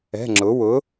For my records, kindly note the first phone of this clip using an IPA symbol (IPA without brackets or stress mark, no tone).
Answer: ɛ̤